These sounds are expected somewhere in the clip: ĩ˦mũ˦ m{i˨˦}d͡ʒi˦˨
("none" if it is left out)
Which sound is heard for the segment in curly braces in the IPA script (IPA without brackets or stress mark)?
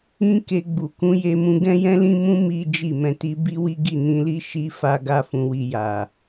i˦